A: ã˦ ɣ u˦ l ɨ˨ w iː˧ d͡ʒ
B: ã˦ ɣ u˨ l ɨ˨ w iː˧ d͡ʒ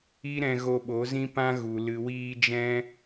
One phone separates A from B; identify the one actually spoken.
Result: B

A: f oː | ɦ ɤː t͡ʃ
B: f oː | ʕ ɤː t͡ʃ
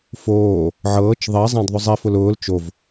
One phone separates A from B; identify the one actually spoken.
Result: B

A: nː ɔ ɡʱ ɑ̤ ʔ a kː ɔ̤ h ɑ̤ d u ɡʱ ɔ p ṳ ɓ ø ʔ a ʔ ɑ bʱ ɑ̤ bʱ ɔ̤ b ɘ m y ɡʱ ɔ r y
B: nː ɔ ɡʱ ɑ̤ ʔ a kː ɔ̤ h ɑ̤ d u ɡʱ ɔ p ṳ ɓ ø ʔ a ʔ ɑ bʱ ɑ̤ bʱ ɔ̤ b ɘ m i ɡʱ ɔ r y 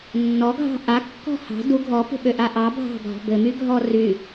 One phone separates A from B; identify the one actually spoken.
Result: A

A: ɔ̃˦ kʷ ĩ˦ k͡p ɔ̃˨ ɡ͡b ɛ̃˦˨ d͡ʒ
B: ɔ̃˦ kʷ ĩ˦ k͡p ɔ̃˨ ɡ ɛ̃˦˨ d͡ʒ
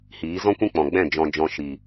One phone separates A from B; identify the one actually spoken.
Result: A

